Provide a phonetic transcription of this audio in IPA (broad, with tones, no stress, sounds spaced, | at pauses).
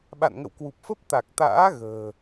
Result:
ɓ a̰˧˨ n ŋ ə̰˧˨ w k w u˨˩ p̚ f ə˦˥ p̚ t̪ a˨˩ k̚ t̪ a̰ː˧˥ ɣ ə̤ː˨˩